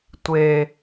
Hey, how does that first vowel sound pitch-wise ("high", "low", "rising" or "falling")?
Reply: low